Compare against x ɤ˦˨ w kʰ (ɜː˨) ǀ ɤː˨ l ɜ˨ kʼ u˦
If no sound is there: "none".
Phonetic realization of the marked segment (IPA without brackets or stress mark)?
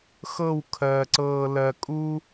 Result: ɜː˨